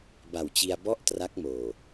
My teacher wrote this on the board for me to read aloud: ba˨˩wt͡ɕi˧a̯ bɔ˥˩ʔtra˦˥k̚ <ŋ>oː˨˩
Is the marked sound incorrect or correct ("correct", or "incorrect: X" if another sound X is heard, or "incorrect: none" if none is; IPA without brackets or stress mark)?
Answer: incorrect: m